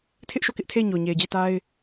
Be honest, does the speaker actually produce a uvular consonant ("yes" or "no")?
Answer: no